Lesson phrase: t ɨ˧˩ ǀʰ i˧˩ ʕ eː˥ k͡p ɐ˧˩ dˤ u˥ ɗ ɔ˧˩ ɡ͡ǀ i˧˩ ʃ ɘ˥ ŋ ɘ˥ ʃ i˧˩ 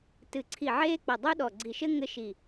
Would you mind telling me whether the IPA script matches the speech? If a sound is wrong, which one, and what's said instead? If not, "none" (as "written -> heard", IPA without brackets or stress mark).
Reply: none